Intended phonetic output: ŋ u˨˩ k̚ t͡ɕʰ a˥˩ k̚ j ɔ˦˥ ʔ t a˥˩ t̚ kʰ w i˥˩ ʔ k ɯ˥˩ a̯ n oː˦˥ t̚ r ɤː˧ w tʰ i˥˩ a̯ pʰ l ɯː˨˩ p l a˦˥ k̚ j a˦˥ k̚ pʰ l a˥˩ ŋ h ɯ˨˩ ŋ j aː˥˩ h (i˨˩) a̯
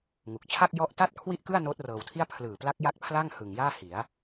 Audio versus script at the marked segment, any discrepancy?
yes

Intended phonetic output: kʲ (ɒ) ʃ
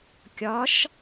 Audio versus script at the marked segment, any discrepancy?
no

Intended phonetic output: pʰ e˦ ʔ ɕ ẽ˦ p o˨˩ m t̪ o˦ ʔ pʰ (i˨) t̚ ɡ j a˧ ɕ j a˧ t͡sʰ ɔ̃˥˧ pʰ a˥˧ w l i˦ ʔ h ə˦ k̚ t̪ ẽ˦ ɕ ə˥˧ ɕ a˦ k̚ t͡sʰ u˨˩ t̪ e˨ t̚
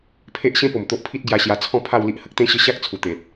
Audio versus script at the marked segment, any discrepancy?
yes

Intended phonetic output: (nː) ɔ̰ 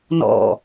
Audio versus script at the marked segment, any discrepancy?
yes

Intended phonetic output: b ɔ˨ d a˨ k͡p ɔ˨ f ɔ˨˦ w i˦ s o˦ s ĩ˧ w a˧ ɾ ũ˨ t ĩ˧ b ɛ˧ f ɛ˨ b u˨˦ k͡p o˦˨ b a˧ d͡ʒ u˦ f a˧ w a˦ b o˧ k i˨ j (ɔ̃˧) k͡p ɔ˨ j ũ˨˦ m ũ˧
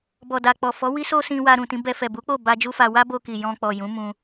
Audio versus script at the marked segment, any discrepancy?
no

